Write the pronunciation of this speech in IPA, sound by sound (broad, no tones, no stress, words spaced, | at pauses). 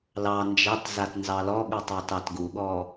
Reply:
lɑ nd͡ʒɑtzat nzɑlɔɠutˤɑ tɑtɡuɠɔ